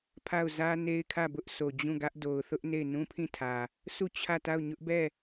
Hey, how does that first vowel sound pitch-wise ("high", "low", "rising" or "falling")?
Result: falling